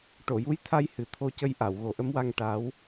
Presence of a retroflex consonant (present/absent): present